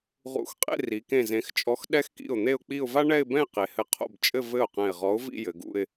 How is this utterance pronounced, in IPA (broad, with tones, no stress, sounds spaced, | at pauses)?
ʁ ṵ˧˩ x qʼ ḛ˥˧ r i˩˧ k ẽ˧˩ z ẽ˩˧ x t͡ʃʼ ɔ˨˥ x ɗ ɛ˥ x k ḭ˥˩ ʊ̯ n̪ e˥˧ ʊ̯ k͡p i˥˧ ʊ̯ v a˥ ɳ ɛ˥˧ ɪ̯ b ɛ̃˥˧ ɪ̯ q e˩˧ h ɘ˨˥ qʰ o̰˥˩ b t͡ʃʼ ɘ˥˧ v ɘ˥˩ ʊ̯ q ɛ̃˧˩ ɪ̯ ʁ ɔ˨˥ ʊ̯ v ḭ˥˧ j ɘ˩˧ ɡ ṵ˥˧ ɪ̯